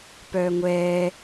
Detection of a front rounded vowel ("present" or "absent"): present